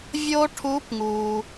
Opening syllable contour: high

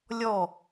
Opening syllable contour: falling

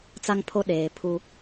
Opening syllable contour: high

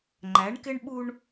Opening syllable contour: rising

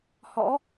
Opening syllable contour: rising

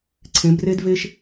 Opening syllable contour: rising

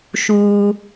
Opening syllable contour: high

